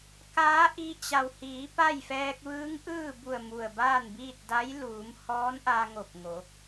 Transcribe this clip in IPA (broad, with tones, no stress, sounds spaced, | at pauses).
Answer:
k aː˧˥ ʔ i˧ t͡ɕ a˩ w h iː˩˧ p a˥˨ j f ɛː˧ k̚ ʋ ɯː˧˥ ŋ ʔ ɯː˥˨ b u˧˩ ə̯ m u˧˩ ə̯ b aː˥˨ n b iː˥˨ t̚ d a˧˥ j l uː˩˧ m h ɔː˧˥ n ʔ a˧ ŋ o˧˩ p̚ ŋ o˩˧